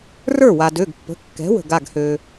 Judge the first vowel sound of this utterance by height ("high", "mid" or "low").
mid